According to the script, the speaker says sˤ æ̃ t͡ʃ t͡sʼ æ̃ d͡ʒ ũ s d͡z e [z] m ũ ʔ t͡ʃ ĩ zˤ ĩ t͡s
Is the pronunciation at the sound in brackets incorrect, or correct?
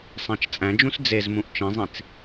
correct